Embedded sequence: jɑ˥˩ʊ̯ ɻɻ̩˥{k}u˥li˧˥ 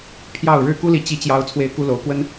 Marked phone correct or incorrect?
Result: correct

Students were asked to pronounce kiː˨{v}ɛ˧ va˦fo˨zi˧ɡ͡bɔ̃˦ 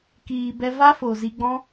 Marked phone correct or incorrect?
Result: incorrect: b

